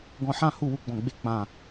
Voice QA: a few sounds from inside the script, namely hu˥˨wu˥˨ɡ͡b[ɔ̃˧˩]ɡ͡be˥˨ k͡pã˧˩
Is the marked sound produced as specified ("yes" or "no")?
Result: yes